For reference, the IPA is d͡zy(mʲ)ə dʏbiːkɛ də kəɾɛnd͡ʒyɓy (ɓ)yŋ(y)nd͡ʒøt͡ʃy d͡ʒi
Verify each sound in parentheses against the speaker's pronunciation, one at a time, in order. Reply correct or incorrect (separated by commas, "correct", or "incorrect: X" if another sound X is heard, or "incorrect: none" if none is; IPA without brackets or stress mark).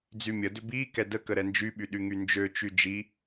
correct, incorrect: ɗ, correct